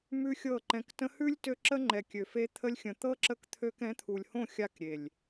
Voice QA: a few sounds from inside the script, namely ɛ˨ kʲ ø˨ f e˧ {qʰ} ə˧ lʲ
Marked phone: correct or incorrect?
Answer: incorrect